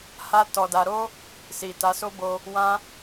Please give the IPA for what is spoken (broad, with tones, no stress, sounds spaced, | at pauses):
h a˦ t ɔ˧ d a˧ ɾ o˦ | s i˨ t a˨˦ s o˦ b o˧ | w ã˦